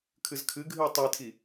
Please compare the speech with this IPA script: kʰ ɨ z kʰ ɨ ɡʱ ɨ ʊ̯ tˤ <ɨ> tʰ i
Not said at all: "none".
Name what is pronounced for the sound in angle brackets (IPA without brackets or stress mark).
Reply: i